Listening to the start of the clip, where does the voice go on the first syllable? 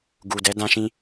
low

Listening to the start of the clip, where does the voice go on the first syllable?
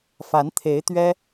rising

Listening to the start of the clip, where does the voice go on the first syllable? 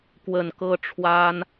low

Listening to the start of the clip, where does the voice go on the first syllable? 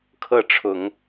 falling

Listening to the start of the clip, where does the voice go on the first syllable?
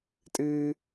high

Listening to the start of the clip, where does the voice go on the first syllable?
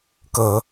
rising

